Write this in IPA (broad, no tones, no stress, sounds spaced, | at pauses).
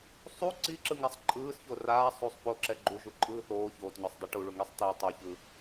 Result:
sˤ u ǀ i ǁ ɯ ŋ a sˤ ǃʼ ɯː s ç o r aː sˤ u sˤ p o ǁ ɛ ɡ͡ǃ u ʒ u ǃʼ ɯː θ oː ç oː t ɲ o sˤ dˤ u ʈ u ɭ u ŋ i sˤ t i tˤ ɯ ç ɯ